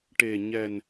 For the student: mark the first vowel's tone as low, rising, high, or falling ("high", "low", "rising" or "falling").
low